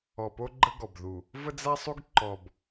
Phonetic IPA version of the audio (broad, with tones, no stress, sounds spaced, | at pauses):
ɔ˨ p o˦ ɡ͡ǃ ə˦ ɡ ɔ˨ b ð u˨ | v ə˦ d͡z a˦ sˤ u˦ ɡ ǃ ɔ˨ b